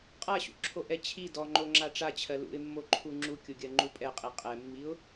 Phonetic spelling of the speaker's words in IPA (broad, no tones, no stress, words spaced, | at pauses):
qʼaɕṵǁʰoʔɛ t͡ɕʰi dɔŋ͡ǃoŋ͡ǁa ʈ͡ʂat͡ɕʰɜ lṵɪ̯mːoǃʰu ŋ͡ǁukʲuɡʲɜŋ͡ǃu pʼɛqʼi qʼɛmːiʊ̯